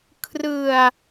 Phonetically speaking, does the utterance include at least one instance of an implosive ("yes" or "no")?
no